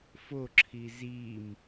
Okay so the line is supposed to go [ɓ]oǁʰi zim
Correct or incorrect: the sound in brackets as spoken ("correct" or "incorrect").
incorrect